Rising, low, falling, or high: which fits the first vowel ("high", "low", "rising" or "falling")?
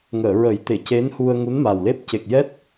low